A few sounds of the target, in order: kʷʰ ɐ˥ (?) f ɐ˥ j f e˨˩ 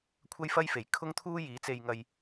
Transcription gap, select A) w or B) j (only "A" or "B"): B